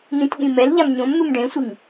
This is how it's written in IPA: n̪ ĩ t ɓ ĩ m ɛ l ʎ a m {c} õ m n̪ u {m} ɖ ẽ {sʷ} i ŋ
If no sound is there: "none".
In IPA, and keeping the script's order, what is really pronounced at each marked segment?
ɲ, m, sʷ

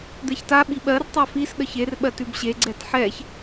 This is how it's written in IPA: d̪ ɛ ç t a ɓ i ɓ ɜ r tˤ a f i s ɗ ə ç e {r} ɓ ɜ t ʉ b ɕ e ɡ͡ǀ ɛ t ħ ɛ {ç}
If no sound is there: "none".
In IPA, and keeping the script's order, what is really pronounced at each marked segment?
r, ç

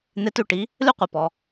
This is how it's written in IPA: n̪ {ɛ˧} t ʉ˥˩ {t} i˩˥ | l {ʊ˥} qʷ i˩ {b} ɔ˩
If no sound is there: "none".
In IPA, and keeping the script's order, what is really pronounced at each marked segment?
e˧, ʈ, ʉ˥, p

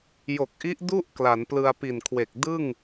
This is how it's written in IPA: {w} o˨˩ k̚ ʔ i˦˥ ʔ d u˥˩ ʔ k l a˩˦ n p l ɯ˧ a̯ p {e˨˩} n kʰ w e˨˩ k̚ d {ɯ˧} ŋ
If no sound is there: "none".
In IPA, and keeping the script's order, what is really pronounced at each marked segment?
j, i˨˩, ɯ˥˩

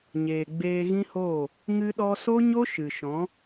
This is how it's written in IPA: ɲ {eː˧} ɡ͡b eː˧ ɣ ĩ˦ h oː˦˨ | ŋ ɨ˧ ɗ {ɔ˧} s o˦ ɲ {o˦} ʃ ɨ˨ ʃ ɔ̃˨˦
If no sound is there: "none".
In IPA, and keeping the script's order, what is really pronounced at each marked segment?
eː˨, ɔ˧, o˦

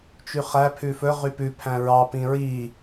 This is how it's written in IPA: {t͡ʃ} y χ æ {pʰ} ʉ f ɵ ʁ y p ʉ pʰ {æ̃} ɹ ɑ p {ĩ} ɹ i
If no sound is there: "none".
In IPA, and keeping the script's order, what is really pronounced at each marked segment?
t͡ʃ, pʰ, æ̃, ĩ

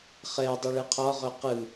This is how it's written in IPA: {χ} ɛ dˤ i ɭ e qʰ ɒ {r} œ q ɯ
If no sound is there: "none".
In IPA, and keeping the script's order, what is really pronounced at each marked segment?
χ, ʁ

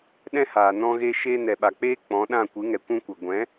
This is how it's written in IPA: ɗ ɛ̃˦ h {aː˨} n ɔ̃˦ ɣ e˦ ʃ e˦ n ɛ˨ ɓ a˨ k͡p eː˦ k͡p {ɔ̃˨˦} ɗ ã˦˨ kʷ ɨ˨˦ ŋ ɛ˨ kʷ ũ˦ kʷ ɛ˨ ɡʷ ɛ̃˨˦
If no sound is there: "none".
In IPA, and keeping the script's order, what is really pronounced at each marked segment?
aː˨, ɔ̃˨˦

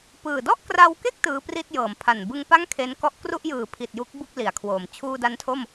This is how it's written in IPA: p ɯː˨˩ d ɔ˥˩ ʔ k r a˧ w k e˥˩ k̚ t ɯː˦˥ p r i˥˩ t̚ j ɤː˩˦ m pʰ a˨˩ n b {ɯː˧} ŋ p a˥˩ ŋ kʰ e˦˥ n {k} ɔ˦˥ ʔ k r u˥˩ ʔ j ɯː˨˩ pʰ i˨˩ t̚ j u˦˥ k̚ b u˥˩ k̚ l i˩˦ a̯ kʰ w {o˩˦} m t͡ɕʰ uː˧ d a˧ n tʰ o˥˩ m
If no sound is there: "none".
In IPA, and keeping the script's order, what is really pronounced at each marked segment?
ɯ˧, k, oː˩˦

